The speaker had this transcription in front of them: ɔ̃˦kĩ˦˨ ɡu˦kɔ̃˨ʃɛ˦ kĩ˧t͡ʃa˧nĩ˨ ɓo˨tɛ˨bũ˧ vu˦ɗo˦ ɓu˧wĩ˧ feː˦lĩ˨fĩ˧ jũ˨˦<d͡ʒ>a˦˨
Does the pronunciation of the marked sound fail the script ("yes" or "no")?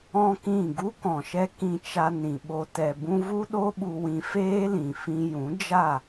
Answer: no